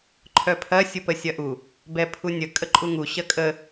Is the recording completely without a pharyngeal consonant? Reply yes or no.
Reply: yes